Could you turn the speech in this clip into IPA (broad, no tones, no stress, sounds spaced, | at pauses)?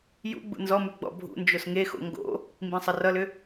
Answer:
j ṵ ɡ͡b ṵ n z ɔ m ʉ ɡ͡b ɔ̰ bʱ ṵ n d͡ʒ o s ŋ e x o̰ ŋ ɡ o̰ | m b ĩ sˤ ʌ r ʌ l ʏ